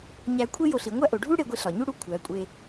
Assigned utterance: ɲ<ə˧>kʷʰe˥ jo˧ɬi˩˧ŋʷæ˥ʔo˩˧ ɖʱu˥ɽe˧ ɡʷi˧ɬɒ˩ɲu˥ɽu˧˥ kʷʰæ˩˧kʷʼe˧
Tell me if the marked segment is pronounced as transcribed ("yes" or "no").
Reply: no